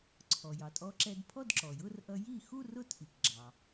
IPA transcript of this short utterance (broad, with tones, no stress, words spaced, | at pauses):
ǀʰɔ˩jɑ˩tʼɔ˧ǁɛ˧d pʰɔ˥˧dǁɔ˩ jʊ˥˧rʔʌ˧ ji˥˩xu˥˧rʊ˥˩t ʔi˩kɡ͡ǁɑ˩